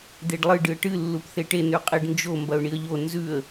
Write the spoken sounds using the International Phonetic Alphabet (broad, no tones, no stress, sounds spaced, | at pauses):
d̪ e ɖ lˠ ɨ ɖ ɨ ə̯ ʈ ɨ lː u p θ e ʈ e n ʉ qʼ i ɖ n d͡ʒ o m b ɐ ʊ̯ ɳ i ə̯ ʎ o n z ʉ ə̯